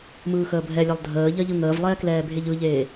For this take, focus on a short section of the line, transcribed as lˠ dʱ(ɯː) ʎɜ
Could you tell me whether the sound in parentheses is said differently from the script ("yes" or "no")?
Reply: yes